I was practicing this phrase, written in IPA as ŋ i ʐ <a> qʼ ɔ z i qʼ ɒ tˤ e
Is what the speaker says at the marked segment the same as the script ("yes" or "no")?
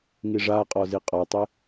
yes